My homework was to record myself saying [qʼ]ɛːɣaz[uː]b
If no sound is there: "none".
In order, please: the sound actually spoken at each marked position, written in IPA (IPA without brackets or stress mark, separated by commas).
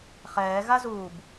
χ, uː